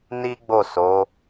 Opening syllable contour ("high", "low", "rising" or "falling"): high